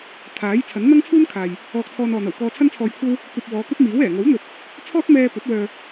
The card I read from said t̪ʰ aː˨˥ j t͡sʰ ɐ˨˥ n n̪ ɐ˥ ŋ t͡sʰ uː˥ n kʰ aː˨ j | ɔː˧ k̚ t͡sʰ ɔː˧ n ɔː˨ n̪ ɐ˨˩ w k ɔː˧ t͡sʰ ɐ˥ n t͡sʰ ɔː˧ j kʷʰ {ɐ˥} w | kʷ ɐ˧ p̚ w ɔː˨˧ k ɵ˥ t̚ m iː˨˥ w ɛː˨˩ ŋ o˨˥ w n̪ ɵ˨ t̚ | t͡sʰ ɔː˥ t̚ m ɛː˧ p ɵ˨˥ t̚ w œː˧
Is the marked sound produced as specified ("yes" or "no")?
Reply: yes